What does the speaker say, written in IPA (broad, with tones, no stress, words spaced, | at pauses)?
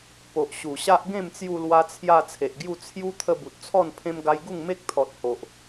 po˨ʔ ɕu˨˩ɕa˦ʔ ɡẽ˥˧mt͡sju˧lwa˧t͡sʰja˧ t͡sʰe˨ʔɡju˥˧ t͡sʰju˦ t̪ʰə˧ bu˨t̚t͡sʰɔ˥˧n pʰẽ˧mɡa˧j ɡu˥˧ŋme˦k̚t̪ʰɔ˨t̚ ho˨ʔ